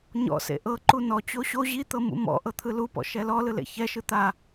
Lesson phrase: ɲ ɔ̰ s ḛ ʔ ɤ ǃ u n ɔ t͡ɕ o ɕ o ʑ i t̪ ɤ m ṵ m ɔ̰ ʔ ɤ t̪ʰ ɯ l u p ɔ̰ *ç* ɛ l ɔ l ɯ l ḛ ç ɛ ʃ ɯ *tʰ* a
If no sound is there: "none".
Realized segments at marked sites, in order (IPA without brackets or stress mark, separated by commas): ʃ, t̪